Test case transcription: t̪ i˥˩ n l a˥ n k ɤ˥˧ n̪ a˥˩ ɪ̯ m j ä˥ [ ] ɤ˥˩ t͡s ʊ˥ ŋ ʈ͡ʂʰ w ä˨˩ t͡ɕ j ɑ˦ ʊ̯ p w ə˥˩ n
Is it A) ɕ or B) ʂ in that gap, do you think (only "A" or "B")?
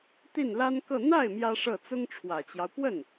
B